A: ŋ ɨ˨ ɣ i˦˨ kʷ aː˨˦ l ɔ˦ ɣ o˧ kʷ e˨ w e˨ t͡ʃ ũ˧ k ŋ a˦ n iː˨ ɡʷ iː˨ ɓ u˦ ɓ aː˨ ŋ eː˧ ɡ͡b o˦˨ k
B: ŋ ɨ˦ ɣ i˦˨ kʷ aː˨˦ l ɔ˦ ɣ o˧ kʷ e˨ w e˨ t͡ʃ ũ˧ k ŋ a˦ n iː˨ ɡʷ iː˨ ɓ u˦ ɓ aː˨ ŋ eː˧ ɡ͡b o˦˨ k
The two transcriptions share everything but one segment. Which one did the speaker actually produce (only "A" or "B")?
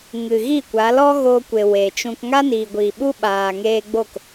A